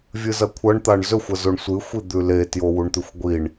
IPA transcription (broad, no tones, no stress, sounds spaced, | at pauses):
vʲ ɨ z ɐ kʷʰ ɐ ɳ t̪ a ɳ z ɵ xʷ ɐ z o ɳ sʷ ɨ xʷ i d̪ ʉ l e t j o w u ɳ t̪ ʉ xʷ ɡʷ i ɳ